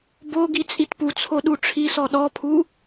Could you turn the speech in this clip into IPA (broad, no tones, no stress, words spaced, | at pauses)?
bo ɡit͡sʼitput͡sʰo ɗuʈ͡ʂʰisɔ ɗɔpʰu